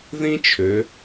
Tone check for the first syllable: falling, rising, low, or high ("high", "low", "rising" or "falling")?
high